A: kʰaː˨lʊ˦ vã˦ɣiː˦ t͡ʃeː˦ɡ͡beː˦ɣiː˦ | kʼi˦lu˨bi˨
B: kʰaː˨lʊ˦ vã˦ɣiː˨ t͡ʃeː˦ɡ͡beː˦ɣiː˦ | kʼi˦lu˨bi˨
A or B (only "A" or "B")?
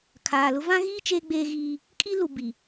A